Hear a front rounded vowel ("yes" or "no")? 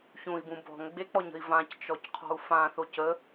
no